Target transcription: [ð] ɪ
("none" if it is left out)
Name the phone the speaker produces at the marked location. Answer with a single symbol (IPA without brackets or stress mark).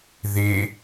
ð